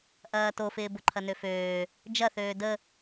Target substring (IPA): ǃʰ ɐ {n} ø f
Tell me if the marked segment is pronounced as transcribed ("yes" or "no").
yes